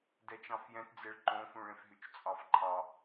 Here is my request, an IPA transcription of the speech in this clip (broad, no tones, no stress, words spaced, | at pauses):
dɛt͡ʃɑ̃fjɛ̃td͡zeɭ ǃõfũɭẽfɦyt͡ʃ t͡sʼɑfǃʰɑ